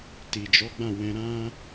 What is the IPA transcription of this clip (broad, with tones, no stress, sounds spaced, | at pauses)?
t i˨ d͡ʒ ɔ˨˦ ɡ͡b ã˦˨ w ɛ̃˧ ɾ ã˦